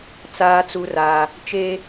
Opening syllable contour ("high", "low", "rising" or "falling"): high